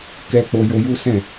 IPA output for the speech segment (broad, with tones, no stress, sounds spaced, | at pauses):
k ɛ˧ k͡p o˧ j o˧ j u˦ s ɛ̃˦˨